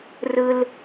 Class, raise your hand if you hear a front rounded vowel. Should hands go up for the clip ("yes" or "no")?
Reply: no